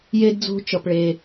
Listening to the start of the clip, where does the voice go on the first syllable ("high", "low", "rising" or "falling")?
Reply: high